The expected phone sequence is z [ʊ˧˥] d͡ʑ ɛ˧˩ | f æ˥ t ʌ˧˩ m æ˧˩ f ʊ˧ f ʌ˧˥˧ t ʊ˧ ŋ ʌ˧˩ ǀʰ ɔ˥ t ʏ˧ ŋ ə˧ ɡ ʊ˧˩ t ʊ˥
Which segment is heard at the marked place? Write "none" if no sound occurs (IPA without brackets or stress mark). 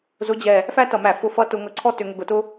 ʊ˧˥